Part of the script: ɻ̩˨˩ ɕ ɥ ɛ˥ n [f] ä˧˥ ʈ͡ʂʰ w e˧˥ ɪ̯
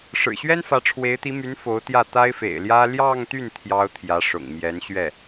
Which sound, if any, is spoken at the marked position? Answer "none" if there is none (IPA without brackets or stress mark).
f